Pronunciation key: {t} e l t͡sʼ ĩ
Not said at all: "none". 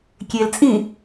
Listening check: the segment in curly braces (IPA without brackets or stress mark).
kʲ